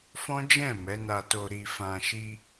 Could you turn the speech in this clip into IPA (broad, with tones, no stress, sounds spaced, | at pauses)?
f ɔ̃˦ d͡ʒ ɛ̃˦˨ m ɛ˨˦ n a˧ t o˧ ɾ i˧ f ã˨ ʃ i˧